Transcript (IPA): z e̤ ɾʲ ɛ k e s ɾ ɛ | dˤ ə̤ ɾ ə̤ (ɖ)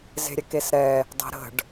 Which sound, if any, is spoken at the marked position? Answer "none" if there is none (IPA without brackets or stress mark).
ɖ